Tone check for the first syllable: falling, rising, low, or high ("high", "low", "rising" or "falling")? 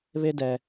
high